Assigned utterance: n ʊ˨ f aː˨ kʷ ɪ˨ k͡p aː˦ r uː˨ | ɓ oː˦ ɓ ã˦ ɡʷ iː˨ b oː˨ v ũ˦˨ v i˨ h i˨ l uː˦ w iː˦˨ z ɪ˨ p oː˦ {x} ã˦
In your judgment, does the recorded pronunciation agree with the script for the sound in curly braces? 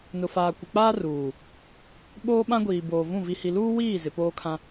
no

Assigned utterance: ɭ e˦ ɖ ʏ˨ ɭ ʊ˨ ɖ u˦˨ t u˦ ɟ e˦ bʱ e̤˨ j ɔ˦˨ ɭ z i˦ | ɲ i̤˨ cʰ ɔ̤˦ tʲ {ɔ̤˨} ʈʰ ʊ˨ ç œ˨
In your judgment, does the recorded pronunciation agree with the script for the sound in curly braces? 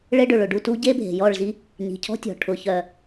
yes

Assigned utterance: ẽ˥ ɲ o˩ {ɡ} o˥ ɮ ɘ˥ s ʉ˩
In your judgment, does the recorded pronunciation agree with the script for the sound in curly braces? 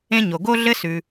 yes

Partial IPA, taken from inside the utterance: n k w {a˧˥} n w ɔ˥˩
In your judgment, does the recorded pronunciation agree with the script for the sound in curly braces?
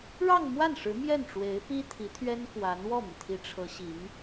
yes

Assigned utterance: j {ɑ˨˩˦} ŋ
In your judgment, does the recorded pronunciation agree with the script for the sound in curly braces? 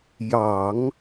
yes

